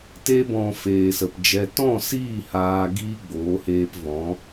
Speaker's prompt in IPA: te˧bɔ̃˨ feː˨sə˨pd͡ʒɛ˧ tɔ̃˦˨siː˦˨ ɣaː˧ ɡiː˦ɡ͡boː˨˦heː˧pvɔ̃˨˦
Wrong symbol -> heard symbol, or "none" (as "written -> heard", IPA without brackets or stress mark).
ɣ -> h